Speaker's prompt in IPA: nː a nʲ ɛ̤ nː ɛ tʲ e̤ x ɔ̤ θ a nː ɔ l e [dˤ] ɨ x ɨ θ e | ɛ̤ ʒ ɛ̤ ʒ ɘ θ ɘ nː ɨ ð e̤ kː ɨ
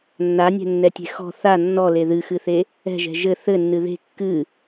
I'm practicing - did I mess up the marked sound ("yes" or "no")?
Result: yes